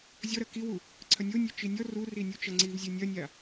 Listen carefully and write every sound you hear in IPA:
zʲ ɔ ɾ ɐ k i w u | ǀʰ ɐ nʲ o nʲ o t͡ʃ i nʲ ɔ r u r i nʲ u t͡ʃ ɐ ŋ͡ǀ i v zʲ ɨ nʲ ɐ nʲ a

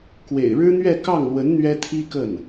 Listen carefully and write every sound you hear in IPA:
k w ḛ˨˩ ɪ̯ ɻ ɻ̩˥ n̪ ɥ ɛ˥˧ k ɑ˥˩ ŋ l w ə˧˥ n n̪ ɥ ɛ˥ t̪ʰ i˥ k ə˥˩ n

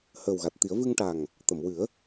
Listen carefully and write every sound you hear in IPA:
h əː˨˩ w ɣ a˨˩ t̚ t̪ i˨˩˦ ə̯ v ɨ˧ ŋ ʈ a˨˩ ŋ | t̪ ə˨˩˨ m w ɨ˨˩˦ ə̯

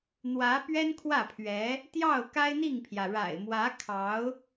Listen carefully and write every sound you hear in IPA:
n̪ w ä˧˥ p ɥ ɛ˥ n kʰ w ä˥˩ pʰ ɥ ɛ˧˥ | t̪ j ɑ˥˩ ʊ̯ k a˥ ɪ̯ n̪ i˥˩ ŋ pʰ j ä˩ ɻ a̰˨˩ ɪ̯ m w ä˧˥ kʰ ɑ˧˥ ʊ̯

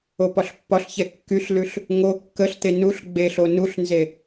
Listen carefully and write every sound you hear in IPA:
o p ɒ ɬ pː ɒ ɬ ç ɛ kː y ɬ l ʉ ɬ | ŋ o kː ə ɬ t̪ e n u ɬ ɡ͡b e ɬ o n u ɬ n z e

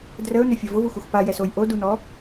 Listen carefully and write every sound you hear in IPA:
d r ə ʊ̯ n ʏ fʲ ʌ v ʊ v u x u x p a j ɛ s o j ʔ o d u n ɔ

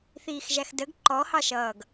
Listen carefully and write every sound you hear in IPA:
θ iː x ʒ æ x d ə ɡ ǃ ɔ h ɑ ʃ ʌː ɡ

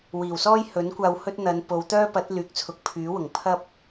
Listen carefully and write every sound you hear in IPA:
w iː˨˩ w s ɔː˥ j h ɵ˨˥ n kʷ aː˧ w h ɵ˥ t̚ n̪ ɐ˨˧ n p o˨˧ w t̪ œː˥ p ɐ˨˥ t̚ l yː˨˥ k̚ t͡sʰ ʊ˨ k̚ pʰ yː˨˥ w ʊ˨˩ ŋ pʰ ɐ˥ p̚

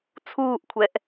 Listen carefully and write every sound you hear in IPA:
t͡sʰ uː ʔ kʷʰ ɛ ʔ

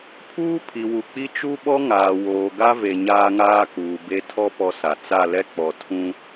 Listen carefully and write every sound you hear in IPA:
pʰ uː˦ pʰ i˨ w u˨ k͡p i˦ t͡ʃ u˦ ɓ ɔ˦ ŋ aː˨ w oː˨ ɡ a˦ v e˨ ɲ aː˦ ŋ aː˦ k uː˨ b e˦ tʰ ɔ˦ p ɔ˦ s a˨ t͡s a˦˨ l ɛ˦ k͡p ɔ˨ tʰ ũ˦

